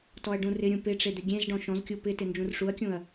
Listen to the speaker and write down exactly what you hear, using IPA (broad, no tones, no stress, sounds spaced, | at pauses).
t ɔ ɐ̯ ɖ ũ r ɪ ɾʲ ũ p ɪ ʈ͡ʂ e d̪ ɪ ɡʲ ẽ z ɖ ɔ̃ ʃ ɔ̃ z kʲ u p ɪ t ɪ n d͡ʒ ũ r ʂ u ɐ̯ kʲ ũ ɐ̯